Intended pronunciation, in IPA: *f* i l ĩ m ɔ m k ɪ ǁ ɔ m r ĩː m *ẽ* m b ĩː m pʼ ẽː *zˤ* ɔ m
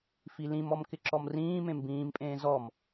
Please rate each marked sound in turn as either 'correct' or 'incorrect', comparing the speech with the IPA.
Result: correct, correct, incorrect

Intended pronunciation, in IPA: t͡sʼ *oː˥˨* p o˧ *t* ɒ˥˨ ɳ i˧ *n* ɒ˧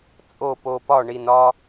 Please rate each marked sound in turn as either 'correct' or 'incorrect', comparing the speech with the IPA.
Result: incorrect, incorrect, correct

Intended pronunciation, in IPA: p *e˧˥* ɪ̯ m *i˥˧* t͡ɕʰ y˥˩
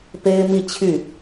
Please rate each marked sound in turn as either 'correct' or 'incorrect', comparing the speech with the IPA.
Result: incorrect, correct

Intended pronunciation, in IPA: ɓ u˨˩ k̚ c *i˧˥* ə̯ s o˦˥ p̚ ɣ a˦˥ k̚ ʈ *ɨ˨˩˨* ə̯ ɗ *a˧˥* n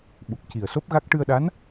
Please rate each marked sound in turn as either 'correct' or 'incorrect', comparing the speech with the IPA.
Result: incorrect, incorrect, correct

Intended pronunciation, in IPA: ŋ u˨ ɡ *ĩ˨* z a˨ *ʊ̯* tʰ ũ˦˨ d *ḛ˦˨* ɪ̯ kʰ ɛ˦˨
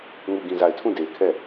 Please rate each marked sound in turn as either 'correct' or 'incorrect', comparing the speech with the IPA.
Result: correct, incorrect, incorrect

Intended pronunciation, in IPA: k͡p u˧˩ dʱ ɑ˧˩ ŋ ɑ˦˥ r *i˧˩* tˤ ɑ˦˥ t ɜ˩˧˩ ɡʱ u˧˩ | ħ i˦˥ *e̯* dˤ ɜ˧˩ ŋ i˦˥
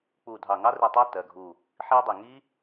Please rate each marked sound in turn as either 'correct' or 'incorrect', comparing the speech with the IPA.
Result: correct, incorrect

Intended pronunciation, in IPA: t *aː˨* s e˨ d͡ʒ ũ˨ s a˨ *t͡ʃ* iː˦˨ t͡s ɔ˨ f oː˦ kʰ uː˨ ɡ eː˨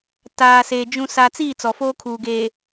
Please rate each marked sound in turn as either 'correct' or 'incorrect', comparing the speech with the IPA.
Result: correct, incorrect

